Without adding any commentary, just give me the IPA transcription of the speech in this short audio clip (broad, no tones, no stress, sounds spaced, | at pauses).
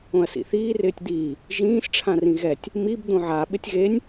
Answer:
õ ɐ̯ s ḭ θ iː r ɪː tʲ d̪ iː | ʒ ĩː s ʈ͡ʂʰ ã r ĩ ɣ ɛ tʲ | m i b d̪ õ ʕ a ɓ ɪ tʲ ɣ e nʲ